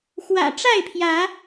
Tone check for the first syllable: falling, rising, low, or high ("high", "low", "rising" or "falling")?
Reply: low